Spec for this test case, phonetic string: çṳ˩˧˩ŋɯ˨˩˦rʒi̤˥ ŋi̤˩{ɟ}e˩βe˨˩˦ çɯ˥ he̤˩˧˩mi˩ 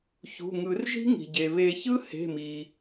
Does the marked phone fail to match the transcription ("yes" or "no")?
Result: no